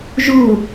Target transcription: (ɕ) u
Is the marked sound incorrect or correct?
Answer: incorrect